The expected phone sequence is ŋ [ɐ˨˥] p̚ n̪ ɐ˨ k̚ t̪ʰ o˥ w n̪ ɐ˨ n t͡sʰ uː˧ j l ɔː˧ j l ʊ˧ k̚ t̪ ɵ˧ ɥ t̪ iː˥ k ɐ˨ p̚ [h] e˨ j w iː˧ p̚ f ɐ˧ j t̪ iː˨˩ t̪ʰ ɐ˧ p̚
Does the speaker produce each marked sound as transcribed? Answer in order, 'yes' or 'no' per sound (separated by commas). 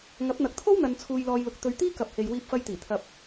yes, yes